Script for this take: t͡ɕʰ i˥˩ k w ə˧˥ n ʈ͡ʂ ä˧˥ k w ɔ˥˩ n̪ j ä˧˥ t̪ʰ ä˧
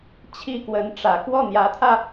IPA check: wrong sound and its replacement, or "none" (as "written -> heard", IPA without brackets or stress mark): none